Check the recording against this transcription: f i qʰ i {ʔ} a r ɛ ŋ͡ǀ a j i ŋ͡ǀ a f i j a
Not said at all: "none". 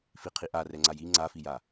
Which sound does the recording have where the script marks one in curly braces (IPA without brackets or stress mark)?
ʔ